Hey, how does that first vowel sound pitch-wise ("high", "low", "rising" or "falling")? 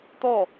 falling